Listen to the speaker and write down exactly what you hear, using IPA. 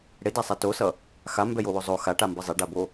ɽ e d a sˤ a t o s ʌ | x a m b ɛ j o w o zˤ o x a ʈ a m b ʌ zˤ e ɖ a b o

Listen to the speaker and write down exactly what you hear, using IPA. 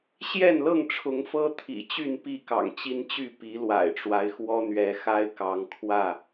ɕ j ɛ˥˨ n l ɤ˥˨ ŋ ʈ͡ʂʰ ʊ˨˦ ŋ f ɤ˦ t̪ʰ ḭ˨˩ t͡ɕ y˥˨ n p i˥˨ k ɑ̰˨˩ ŋ t͡ɕ i˦ n t͡ɕ y˥˨ p i˨˦ l w a̰˨˩ ɪ̯ ʈ͡ʂ w a˦ ɪ̯ x w ɔ˦ n̪ ɥ ɛ˨˦ x a˦ ɪ̯ k ɑ˨˦ ŋ kʰ w ä˥˨

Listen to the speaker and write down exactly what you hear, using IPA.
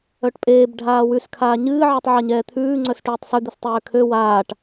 œ ʈ pʼ eː b ɖʱ aː w ʉ s kʰ aː ɲ ɨː ʕ ɛ tˤ ʕ a ɲ ɛː t̪ʰ ʉː ŋ͡ǀ œ s ʈ ʉː tˤ s ʉ d̪ ɨ s tˤ øː kʰ ø w aː ʈ

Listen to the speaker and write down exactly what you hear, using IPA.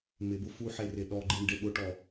m ɪ b ʊ f u ħ e r ɪ ɗ ɔ ɡ͡ǃ i ɳ ɖ e ɓ ʊ ʈ ɔ

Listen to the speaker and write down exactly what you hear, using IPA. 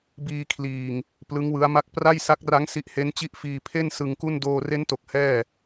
b iː˧ kʰ l iː˨˩ ŋ | p l ɯ˦˥ ŋ w ɯ˦˥ a̯ m a˥˩ k̚ p r a˥˩ j s a˦˥ k̚ r a˦˥ ŋ s i˦˥ ʔ h e˦˥ n t͡ɕ i˦˥ ʔ f iː˧ pʰ e˥˩ n s ɯ˧ ŋ k u˥˩ n d oː˧ r e˦˥ n t o˨˩ k̚ h ɛː˥˩

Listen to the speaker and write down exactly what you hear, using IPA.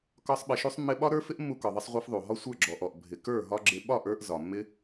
k ɒ˦ sˤ ɓ ɪ˧ ʃ u˦ sˤ mː ɪ˦ ɓ ɒ˦ ɾ ə˞˦ f ɪ˦ ʔ mː u˧ k ɒ˨ ðˤ ə˧ sˤ ʁʷ ə˞˧ f ðˤ u˨ ɦ ɒ˦ sʷ ə˞˦˨ ɡ͡ǁ ɔ˨ ʔ ɔ˨ ʔ bʱ ɪ˨ k ə˞˦˨ ɦ ɒ˦ ɡ͡ǁ ɪ˦ ɓ ɒ˦˨ ʔ ə˞˧ ʔ z ɒ˨ mː ɪ˦

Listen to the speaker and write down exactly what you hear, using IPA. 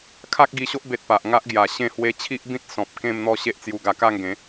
kʰ a˦ k̚ ɡ i˧ ɕ o˦ ʔ b e˨ t̚ p a˨ ʔ ŋ a˦ ʔ ɡ j a˨˩ ɕ ẽ˥˧ h w e˧ t͡ɕʰ i˦ ʔ b ĩ˦ t̚ s ɔ̃˨ p̚ k ẽ˥˧ m n̪ ɔ˥˧ ɕ e˦ ʔ t͡s j u˧ ɡ a˧ k a˥˧ ŋ ɡ ẽ˨˦

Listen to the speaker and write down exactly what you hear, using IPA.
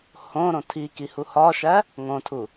h õ ɾ õ tʰ i k i h u h ɒ ʃ æ | ŋ õ tʰ u

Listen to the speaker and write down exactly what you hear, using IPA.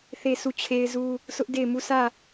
θ e˦˨ s u˦˨ t͡ɕʰ e˦ ɪ̯ z u˦ | sʰ ʊ˦ ʔ d e˦˨ ɪ̯ m u˦˨ sʰ ä˦˨

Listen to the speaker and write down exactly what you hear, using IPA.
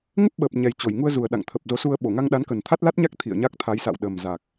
ŋ ə˦˥ p̚ ɓ əː˨˩ p̚ ɲ ɛ˨˩ j t͡ɕ o˧˩ j ŋ u˧ ə̯ z u˨˩ ə̯ ɗ a̰˧˨ ŋ t̪ʰ ə˨˩ p̚ z o˨˦ s u˧ ə̯ ɓ o˧˩ ŋ a˧ ŋ ɗ a˨˦ n k ə˨˩ n t̪ʰ a˦˥ t̚ l a˦˥ t̚ ɲ a˦˥ k̚ t̪ʰ ḭ˧˨ ə̯ ɲ a˦˥ k̚ t̪ʰ a˨˦ j s a̰˧˨ w ɗ ə˨˩ m z a˨˩ k̚

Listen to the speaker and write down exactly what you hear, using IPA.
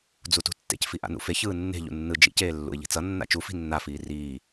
d͡z u t ṳ tː ḛ c f i ʔ a̰ n ṵ f e ç ɯː nː e̤ ʎ ṵ nː ɯ d͡ʒ ḭ c eː lː ṵ ɪ̯ ʎ i̤ t͡s ʌ nː a̰ t͡ʃ u f i̤ nː a f iː r iː

